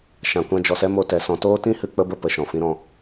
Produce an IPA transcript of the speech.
ʃã˨kʷã˧d͡ʒɔ˨sɛ˦ mo˧tɛ˨sɔ̃˧ toː˦tĩ˦hɨ˧ k͡pə˦bə˦ pə˨ʃɔ̃˨ fĩ˧ɾɔ̃˦˨

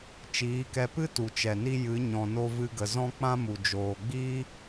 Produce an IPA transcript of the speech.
t͡ʃiː˨˦kɛ˧ pɨ˦tu˨t͡ʃɛ˨ni˧ jɨ˨˦ɲɔ̃˨no˧vɨ˧ ɡə˨zɔ̃˦k͡pã˦mu˨ d͡ʒoː˨ɡ͡biː˦

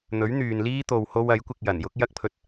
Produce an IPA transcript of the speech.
n̪ɵ˨˥ɥn̪yː˨nliː˥ t̪o˧who˥w ɐ˨˥jkʷɪ˧k̚jɐ˨˩n jʊ˥k̚jɐ˥k̚pʰɵ˧t̚

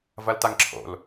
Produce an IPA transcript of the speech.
vɐltaŋǁʰo̰l

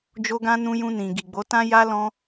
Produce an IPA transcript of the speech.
d͡ʒo˧ɡã˧nũ˧ jũ˧nĩ˨ ɡi˨ɡ͡bo˨˦tã˦ ja˧ lɔ̃˧

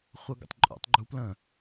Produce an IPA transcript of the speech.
χʷɤɡə̰tˤǃʼṵtˤ ɡ͡ǃuplə̃

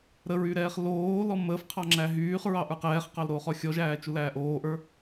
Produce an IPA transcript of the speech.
ɾəɹyɾɛːχ loːlɔ məːfqʰɑŋ͡ǁæ ɦyːχɹɑʔə˞q ɛːχqɑlɾoːχɔ xʲɔʒæːt͡ʃulæː ʔoːʔə˞

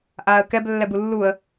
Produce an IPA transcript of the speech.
ʔaːə̯kɛb lːɛbulːuə̯

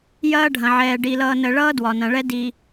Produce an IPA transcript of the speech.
jɐː˦ɖʱɐ̃˨ʕɛː˨ ɖi˨lʌː˨nə˨ɭʌː˦ dwɒ˨nɐ̃˨ɭɛ˦ di˨

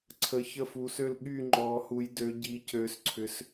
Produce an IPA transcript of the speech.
ǀʰə˧˥çə˥˧fuː˧˥sø˥˧l ɠy˥˧ ŋ͡ǃɔː˧˥hu˧˥jdø˧˥ ɟiː˧˥cøː˧˥sǀʰʏ˧˥s

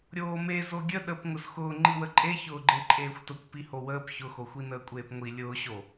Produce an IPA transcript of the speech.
ɾʲoːme zoɡʲə ɗəp ŋʊzxʊː ŋ͡ǃiwəǃʼeçʊː ɡ͡ǃeǃʼeːxʷtʊkʷ pihowəːp çʊxoxʷinəː kʷʼeːpŋʷi lʲʊːɕo

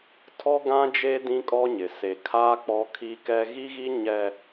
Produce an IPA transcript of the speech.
tʰɔ˦ɡã˦d͡ʒe˦ dĩ˦kʼɔ˦ɲɪ˨ se˨ kʰa˦ k͡pɔ˦kʰi˦kɛ˦ ɣi˦ɣi˦ ɲɛ˦

